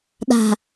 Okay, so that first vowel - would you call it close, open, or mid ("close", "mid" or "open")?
open